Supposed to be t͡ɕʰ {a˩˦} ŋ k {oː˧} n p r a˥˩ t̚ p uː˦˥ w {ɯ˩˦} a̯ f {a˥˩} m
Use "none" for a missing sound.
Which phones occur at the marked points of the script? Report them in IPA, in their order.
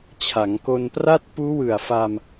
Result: a˩˦, o˧, ɯ˨˩, a˧

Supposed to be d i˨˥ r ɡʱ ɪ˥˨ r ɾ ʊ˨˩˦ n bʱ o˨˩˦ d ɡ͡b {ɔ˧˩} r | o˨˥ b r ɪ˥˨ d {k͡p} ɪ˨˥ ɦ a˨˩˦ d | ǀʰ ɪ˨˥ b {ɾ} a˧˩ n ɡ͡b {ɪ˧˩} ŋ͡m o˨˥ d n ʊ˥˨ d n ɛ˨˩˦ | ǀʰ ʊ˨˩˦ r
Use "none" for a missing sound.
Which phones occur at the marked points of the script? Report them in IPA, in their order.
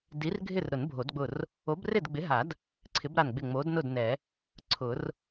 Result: ʊ˧˩, ɡ͡b, ɾ, ɪ˧˩

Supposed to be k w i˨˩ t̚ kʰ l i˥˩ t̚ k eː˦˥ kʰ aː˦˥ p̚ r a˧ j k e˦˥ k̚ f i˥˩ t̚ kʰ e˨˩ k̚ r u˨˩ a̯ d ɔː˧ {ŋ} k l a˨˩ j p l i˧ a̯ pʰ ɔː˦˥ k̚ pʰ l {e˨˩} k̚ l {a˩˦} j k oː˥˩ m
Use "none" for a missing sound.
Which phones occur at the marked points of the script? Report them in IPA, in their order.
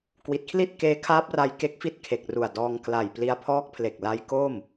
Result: ŋ, e˨˩, a˦˥

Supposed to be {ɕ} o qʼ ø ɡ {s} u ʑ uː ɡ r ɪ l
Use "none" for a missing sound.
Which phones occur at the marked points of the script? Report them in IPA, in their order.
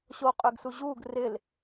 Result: ɕ, s

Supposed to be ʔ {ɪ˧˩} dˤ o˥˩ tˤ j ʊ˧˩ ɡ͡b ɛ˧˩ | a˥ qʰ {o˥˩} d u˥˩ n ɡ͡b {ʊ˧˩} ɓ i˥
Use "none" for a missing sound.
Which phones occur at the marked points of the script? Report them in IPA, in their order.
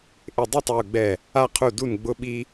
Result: ɪ˧˩, u˥˩, ʊ˥

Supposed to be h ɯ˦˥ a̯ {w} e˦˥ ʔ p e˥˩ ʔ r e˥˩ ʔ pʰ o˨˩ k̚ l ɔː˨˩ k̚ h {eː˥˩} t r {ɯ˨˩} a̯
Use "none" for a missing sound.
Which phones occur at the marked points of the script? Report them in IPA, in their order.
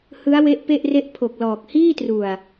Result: w, iː˥˩, u˨˩

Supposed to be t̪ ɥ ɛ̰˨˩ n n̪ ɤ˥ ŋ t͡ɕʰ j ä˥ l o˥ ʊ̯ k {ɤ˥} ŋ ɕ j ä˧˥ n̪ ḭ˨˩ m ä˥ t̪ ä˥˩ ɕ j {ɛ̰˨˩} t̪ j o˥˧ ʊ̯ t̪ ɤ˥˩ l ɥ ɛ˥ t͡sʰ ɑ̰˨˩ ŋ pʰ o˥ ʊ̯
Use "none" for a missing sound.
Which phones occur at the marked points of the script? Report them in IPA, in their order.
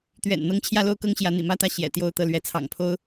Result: ɤ˥, ɛ̰˨˩

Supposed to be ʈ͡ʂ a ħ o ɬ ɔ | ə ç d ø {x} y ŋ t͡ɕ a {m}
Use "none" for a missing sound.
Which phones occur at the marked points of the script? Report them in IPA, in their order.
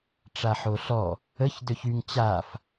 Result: ç, f

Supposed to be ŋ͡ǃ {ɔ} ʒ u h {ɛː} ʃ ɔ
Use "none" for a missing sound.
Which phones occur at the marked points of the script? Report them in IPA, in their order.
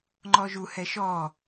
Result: ɔ, ɛ

